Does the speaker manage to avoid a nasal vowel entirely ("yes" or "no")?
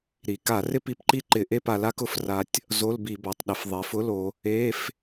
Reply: yes